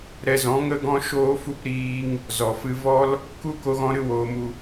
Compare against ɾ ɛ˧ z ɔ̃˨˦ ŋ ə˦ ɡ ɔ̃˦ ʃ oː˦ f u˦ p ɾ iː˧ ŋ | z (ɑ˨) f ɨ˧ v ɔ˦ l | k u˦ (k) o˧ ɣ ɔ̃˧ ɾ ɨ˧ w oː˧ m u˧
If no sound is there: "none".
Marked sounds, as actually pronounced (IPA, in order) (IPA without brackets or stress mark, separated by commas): ɔ˨, k